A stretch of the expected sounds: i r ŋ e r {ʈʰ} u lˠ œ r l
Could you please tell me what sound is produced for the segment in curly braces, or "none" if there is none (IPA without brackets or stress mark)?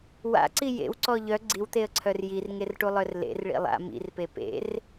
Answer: ʈ